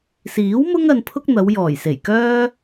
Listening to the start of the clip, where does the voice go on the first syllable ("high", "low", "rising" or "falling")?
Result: rising